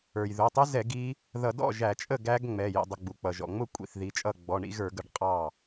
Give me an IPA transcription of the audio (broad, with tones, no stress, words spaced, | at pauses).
ə˞˩jðʊ˩˧˩tˤɪ˦˥zɛ˧˩˧ɡ i˦˥ | ðʌ˧˩˧dɔ̰˥˩ʒæ˧˩˧t͡ʃʼə˥˩ ɡæ˦˥ɡŋ͡mɛ˩˧˩ jḭ˩˧˩dˤə˩˧˩ ɡ͡bu˩k͡pʌ˩ʒɔ̰˩ŋ͡mʊ˥˩ kʷʼḭ˩˧˩θ ði˩˧˩t͡ʃʼʌ˥˩ ɡ͡bɔ˩˧˩ɳḭ˦˥ɣə˞˧˩˧ɡə˧˩˧ɖ qʼɑ˥˩